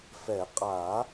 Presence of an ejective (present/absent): present